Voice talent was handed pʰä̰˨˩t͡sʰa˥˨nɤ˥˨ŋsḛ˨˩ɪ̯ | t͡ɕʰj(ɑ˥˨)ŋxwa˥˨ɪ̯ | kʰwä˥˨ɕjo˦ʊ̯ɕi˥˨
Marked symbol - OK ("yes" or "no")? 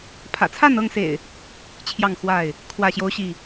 yes